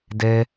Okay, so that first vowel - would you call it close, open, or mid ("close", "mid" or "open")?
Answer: mid